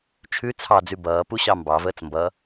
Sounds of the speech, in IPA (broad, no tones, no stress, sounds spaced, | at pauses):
t͡ʃʰ ʉ t͡sʰ ɑ d͡z ʉ b ʌː p u ɕ ɑ m b ɑ v əː t͡s m b ʌ